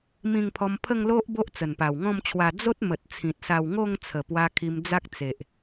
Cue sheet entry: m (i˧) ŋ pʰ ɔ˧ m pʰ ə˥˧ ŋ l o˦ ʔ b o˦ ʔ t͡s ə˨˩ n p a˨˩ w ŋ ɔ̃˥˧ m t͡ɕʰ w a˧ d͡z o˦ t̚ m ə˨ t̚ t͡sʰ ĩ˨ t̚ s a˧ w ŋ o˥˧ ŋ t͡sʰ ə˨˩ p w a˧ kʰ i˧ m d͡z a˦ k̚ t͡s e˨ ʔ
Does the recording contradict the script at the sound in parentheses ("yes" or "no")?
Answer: yes